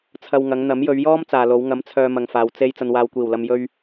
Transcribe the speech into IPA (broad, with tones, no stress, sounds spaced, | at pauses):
t͡sʰ ɐ˧ w ŋ ɐ˨˧ ŋ n̪ ɐ˨˥ m j ɵ˨˧ ɥ j ɔː˥ m t͡s aː˨ l o˨˧ w ŋ ɐ˨˥ m t͡sʰ œː˨ m ɐ˨ ŋ f aː˨ w t͡s e˧ j t͡s ɐ˨ n w aː˨ w kʷ iː˨˩ w l ɐ˨ m j ɵ˧ ɥ